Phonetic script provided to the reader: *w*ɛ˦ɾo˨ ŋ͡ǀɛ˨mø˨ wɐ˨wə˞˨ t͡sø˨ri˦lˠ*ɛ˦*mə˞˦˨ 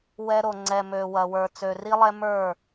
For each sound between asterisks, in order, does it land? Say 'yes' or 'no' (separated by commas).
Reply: yes, yes